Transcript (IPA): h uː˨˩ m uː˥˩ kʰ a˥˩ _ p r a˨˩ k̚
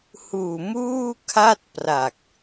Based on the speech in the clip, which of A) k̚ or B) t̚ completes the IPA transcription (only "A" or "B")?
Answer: B